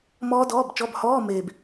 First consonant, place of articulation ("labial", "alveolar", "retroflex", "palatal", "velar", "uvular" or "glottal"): labial